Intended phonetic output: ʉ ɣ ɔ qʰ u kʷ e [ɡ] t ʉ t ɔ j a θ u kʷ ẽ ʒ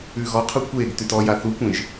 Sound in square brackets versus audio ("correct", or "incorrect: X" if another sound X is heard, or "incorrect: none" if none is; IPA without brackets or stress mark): correct